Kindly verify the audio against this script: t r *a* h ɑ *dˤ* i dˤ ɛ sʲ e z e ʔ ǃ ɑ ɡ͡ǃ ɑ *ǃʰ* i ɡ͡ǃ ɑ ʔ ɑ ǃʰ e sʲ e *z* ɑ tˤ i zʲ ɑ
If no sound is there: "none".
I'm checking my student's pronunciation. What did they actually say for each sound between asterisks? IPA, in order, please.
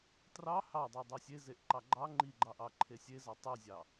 ɑ, dˤ, ŋ͡ǃ, z

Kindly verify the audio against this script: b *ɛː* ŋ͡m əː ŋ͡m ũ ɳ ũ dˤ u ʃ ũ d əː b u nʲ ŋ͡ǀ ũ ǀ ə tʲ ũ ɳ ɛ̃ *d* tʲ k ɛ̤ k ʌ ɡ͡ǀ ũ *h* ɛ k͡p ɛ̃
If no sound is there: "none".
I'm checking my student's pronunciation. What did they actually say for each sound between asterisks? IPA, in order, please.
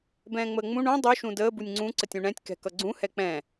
ɛ̃ː, none, h

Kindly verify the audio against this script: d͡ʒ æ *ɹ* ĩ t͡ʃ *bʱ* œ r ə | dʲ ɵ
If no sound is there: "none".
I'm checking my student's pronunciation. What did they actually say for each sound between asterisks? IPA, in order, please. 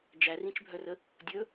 r, bʱ

